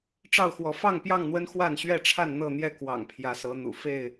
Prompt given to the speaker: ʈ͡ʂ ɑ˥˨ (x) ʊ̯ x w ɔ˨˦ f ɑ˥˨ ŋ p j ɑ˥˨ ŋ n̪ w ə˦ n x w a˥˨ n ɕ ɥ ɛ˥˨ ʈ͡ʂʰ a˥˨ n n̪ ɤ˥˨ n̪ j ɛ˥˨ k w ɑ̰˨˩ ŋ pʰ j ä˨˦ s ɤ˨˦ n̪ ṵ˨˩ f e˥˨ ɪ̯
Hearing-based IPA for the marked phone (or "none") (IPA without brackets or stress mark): none